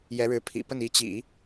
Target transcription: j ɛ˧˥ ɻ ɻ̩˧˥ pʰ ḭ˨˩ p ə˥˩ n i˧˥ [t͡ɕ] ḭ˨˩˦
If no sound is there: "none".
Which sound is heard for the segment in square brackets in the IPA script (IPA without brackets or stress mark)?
t͡ɕ